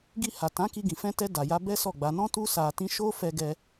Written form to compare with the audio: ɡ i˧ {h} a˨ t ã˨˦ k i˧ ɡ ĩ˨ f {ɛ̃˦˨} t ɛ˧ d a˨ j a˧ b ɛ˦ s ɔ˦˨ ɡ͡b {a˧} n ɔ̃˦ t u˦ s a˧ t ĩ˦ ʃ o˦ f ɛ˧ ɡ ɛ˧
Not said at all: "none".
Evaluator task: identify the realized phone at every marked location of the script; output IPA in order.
h, ɛ̃˧, a˧

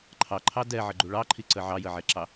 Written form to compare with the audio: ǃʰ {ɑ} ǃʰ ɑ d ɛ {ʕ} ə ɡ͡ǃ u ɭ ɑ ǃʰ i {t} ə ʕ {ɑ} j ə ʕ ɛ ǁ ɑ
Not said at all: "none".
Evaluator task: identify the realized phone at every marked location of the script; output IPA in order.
ɑ, ʕ, ǀ, ɑ

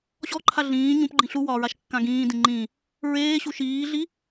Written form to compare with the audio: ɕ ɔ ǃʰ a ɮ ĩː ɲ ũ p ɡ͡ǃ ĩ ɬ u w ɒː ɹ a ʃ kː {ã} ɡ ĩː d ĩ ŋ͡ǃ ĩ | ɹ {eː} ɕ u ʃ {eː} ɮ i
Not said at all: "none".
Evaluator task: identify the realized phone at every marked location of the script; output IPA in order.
ã, eː, iː

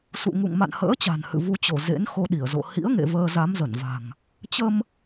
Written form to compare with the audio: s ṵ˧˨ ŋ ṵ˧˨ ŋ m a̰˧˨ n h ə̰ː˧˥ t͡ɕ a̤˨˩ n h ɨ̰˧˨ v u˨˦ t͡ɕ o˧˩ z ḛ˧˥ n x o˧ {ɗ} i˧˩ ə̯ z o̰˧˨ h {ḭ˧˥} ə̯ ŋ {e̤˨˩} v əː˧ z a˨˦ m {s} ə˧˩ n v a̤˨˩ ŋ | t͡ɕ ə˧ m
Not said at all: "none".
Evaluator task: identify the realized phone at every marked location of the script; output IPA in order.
ɗ, ḭ˧˥, ḛ˧˨, z

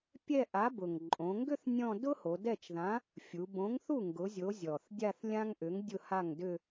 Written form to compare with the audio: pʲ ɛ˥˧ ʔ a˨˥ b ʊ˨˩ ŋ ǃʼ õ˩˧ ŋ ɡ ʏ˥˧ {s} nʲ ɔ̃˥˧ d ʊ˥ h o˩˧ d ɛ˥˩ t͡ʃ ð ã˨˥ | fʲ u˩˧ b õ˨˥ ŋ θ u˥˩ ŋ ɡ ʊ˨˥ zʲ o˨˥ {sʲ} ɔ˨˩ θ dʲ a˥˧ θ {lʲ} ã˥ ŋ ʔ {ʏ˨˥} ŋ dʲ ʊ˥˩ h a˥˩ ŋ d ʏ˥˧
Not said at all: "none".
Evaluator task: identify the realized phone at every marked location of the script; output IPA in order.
θ, zʲ, lʲ, ʏ˨˥

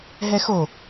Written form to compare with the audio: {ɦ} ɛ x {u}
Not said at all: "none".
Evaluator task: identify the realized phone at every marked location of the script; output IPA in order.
ɦ, o

